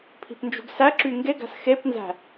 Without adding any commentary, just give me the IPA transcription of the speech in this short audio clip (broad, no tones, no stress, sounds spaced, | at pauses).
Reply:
pʰ i̤ p n d͡ʒ ṳ ɡ s æ ǁ y ŋ ɡ e ɡ æ̤ s x e p n z æ̤